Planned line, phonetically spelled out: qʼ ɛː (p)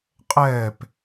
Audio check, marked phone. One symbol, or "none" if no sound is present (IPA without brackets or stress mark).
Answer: p